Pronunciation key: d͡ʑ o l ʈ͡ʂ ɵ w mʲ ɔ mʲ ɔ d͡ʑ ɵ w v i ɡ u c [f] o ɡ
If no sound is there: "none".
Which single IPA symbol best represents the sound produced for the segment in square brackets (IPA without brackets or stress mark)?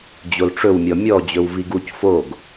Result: f